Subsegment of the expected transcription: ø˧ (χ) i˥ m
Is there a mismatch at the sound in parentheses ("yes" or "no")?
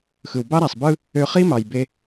no